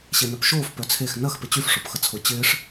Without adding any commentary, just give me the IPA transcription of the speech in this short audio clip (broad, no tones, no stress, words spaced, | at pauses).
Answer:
ɕenœpʃoːf pœt͡sʰex nɐx pɪt͡ɕyf ʂopxət͡sʰʊ t͡ɕɪːʂ